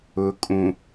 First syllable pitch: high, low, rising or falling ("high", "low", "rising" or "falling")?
low